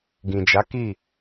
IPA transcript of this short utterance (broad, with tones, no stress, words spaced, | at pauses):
ɡĩ˨d͡ʒa˨˦ki˦˨